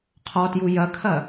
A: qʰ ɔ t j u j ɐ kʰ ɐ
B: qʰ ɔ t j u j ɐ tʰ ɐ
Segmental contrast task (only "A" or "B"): A